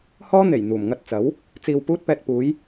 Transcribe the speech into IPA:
h ɔː˥ n̪ e˨˩ j n̪ uː˨˩ m ŋ ɐ˧ t̚ t͡s ɐ˨˥ w | t͡s iː˨ w p uː˧ t̚ p ɛː˨ t̚ p uː˨˧ j

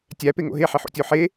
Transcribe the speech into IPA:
tʲ æ p e ŋ o̰ ɦ e ħ i ħ o̰ tʲ o ħ e

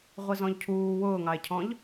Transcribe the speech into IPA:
ʁʷ i z ɔ̃ ʎ cʰ uː w ʊː ŋ ɑ e̯ cʰ ɔ̃ ʎ

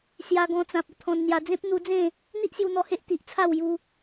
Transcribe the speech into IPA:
s j a˧ ɡ ɔ̃˧ t͡s ã˨ p̚ ə˧ t̪ʰ ɔ̃˧ n n̪ j a˧ d͡z ẽ˦ p̚ n̪ u˧ d͡z ẽ˥˧ | n̪ i˦ ʔ s j u˧ n̪ ɔ˧ h e˦ ʔ t̪ i˨ ʔ t͡sʰ a˥˧ w j u˦

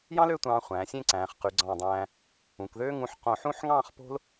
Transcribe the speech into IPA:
j ɑ̃˥ l ø˥˧ tʷ ɑ̃ː˧ χʷ æ̃ː˩˧ sʲ ẽ˥˧ ǀ æ̃ː˩˧ χ q y˩˧ ɡ͡ǀ ɑ̃˧˩ dˤ æ̃ː˧ | ũ˩˧ k ð øː˥ ŋ ũ˧ ħ q õ˧˩ ħ ũ˥˧ ħ ŋ ɑ̃ː˥˧ χ p o̤˥ l

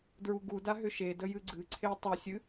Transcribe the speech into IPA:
d ɹ u ɡ u d a ɦ ʏ ʃ e d ə j ɨ ɡ͡ǀ ɨ ǀʰ e tˤ ʏ sʲ ɨ

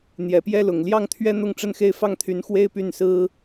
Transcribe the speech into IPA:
n̪ j ɛ˨˩ p j ɛ˥˩ l ʊ˨˩ ŋ l j ɑ˥˩ ŋ t̪ʰ ɥ ɛ˥ n̪ ʊ˥˧ ŋ ʈ͡ʂ ə˥˧ n x e˥˧ ɪ̯ f ɑ˥˩ ŋ t̪ʰ y˧˥ n x w e˥ ɪ̯ p y˥˩ n s ɹ̩˥

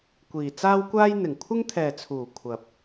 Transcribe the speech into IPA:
kʷ iː˨ t͡s aː˥ w kʷ aː˥ j n̪ ɪ˨˩ ŋ kʷʰ ɪ˥ ŋ t̪ʰ ɛː˨ t͡sʰ uː˨˩ kʷʰ ɐ˨ p̚

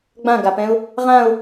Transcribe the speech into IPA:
ɡ͡b ã ɡ a p ɛ̃ ʊ̯ | ʁ ã ʊ̯

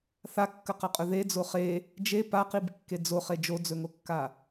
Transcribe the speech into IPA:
θ a kː ɐ q ɐ qʼ ɵ ð e d͡z o χ e | d͡ʒ e p a q i b kː e d͡z o χ e d͡ʒ o d͡z ɵ ŋ o kː a

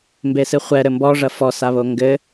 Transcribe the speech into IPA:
m b e s ɨ χʷ ɛ ɾ ɘ m b ɔ ʐ ɐ f ɔ s a β o ŋ ɡ ɘ

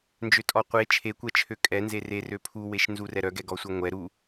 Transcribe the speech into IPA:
n d͡ʒ ø tʼ ɔ qʷ e t͡ʃʰ e kʷ ɛ t͡ʃʰ ø kʼ ɛ n z e r e r ø pʰ u w e ʃ n z u r ɛ ɾ œ ɡ ɛ ɡ ɔ sʷ ɛ ŋʷ ɛ ɾ u

